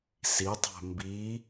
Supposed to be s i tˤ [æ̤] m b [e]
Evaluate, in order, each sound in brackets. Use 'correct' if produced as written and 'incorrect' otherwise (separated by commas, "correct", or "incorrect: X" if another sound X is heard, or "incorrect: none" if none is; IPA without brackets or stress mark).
correct, incorrect: i